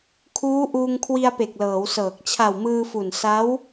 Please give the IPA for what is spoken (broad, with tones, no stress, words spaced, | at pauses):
kʰuː˦˥ʔuː˧ŋ kʰwi˧a̯pe˨˩k̚lɤː˩˦w sɤː˨˩k̚ t͡ɕʰa˨˩wmɯː˧fu˨˩n sa˦˥w